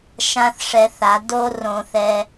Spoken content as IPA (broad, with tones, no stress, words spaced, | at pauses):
ʃã˦θ ʂɛ˧θa˨˦ do˦rõ˧θɛ˧